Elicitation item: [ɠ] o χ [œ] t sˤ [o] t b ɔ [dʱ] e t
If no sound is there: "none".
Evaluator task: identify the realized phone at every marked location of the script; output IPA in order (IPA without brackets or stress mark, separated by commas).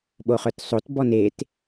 ɓ, œ, o, n